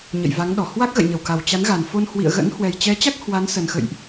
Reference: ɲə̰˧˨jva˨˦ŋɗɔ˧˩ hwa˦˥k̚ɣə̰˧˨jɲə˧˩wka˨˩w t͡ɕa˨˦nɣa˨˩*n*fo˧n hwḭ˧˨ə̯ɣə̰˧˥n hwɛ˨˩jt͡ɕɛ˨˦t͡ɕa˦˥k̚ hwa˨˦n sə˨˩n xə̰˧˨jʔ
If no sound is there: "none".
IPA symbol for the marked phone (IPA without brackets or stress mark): n